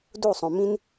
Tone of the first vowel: falling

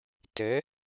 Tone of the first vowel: rising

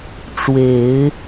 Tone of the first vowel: low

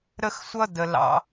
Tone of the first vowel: high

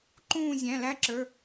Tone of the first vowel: falling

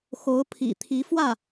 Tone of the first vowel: rising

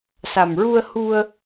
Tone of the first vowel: low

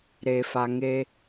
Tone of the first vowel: low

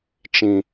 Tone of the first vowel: low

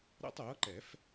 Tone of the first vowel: high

